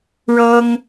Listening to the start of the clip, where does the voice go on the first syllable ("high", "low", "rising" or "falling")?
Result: high